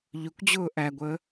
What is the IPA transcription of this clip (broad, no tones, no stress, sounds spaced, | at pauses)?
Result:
ʎ ʊ kʷ d͡ʑ ʊː ʔ æ ɡʷ əː